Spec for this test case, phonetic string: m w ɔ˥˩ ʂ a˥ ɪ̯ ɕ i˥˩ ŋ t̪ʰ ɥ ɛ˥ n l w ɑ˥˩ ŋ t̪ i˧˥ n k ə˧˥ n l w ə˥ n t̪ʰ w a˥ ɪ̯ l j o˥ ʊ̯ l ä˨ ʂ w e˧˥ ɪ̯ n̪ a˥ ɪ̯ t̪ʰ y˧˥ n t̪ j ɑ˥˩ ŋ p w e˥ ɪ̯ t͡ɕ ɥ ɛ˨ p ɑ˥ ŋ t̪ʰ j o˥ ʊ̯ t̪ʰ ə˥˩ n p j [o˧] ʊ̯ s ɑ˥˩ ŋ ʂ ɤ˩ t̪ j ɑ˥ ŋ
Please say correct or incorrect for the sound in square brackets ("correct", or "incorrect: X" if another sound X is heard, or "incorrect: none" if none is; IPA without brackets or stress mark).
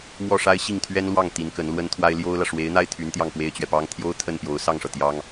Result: incorrect: o˧˥